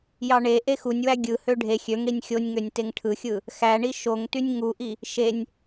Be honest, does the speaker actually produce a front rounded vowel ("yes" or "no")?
yes